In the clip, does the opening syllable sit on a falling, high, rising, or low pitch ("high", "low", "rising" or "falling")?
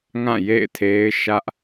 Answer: falling